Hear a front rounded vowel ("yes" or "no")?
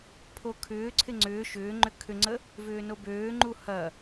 yes